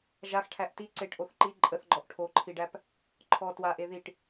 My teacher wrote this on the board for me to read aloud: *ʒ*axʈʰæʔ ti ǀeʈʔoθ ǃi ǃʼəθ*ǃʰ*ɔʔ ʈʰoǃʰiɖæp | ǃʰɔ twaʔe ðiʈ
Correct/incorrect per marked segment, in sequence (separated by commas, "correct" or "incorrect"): correct, incorrect